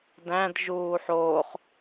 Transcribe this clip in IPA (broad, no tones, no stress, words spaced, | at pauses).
dæ̃d ʒuːħoːχ